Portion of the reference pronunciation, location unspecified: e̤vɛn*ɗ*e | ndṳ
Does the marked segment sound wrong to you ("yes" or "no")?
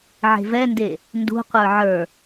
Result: yes